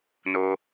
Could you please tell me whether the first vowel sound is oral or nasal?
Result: oral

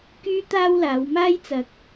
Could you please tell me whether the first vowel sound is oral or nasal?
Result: oral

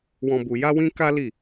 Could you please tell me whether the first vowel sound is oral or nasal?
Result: nasal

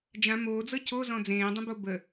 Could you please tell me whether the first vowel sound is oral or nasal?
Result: nasal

